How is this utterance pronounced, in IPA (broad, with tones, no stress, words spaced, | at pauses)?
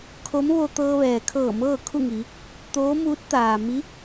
kʰo˧˥m ʋo˧ t̪ɤː˧ʋɛː˩kʰɤː˧˩ mɤː˥˨kʰu˥˨ ŋi˩˧ | t̪oː˧˥muː˧˥t̚ t̪aː˩ mi˧˥